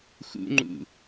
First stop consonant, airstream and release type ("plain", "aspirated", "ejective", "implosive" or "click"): click